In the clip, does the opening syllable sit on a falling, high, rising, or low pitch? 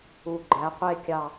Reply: low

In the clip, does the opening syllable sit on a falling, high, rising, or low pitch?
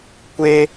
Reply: high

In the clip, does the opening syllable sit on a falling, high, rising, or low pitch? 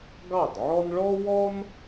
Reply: falling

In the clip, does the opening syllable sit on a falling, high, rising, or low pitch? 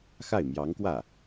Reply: falling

